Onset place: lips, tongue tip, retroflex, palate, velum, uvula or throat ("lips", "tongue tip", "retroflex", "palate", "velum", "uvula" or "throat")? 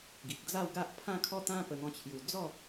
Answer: velum